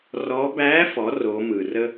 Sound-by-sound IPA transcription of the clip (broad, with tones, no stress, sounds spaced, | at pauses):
r ɔ˧˥ b æ˧˥ f ɔ˩˧ r o˩˧ m ɯ˩ r ə˥